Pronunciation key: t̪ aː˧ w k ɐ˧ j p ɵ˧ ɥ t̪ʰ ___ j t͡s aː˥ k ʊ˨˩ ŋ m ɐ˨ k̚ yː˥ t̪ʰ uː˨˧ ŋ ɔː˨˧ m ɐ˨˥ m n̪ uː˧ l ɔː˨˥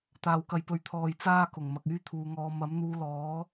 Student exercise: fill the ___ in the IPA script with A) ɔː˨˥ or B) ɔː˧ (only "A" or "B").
B